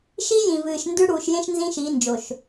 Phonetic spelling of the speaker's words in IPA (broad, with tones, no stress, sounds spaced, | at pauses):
ʃ i˦ j ĩ˨ v ɨː˨ ʃ n d ʉ˦ ɽ uː˨ ʃ j ẽ˦ ʃ n z ĩ˦ ʃ i˨˦ n d͡ʒ o˨ ʃ